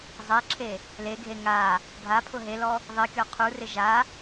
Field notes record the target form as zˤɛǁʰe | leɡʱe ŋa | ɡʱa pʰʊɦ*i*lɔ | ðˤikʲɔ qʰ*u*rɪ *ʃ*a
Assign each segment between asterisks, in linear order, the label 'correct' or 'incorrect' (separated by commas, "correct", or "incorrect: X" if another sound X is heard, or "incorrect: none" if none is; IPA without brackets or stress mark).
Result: incorrect: e, correct, incorrect: ʒ